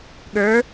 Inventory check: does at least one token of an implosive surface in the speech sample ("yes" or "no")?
yes